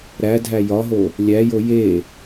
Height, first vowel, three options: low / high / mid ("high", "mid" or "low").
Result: low